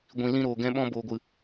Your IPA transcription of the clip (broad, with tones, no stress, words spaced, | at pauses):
ɡʷĩ˨lĩ˧ɾoː˨ɡɛ̃˧ ɓɔ̃˧boː˨ɡʷɨ˨